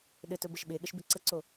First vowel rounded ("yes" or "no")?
no